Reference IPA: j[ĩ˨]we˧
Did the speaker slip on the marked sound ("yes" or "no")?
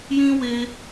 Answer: yes